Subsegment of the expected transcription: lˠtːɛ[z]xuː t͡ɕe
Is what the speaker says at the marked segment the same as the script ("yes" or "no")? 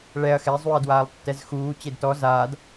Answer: yes